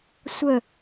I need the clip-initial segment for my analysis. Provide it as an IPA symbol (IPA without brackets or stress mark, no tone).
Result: sʷ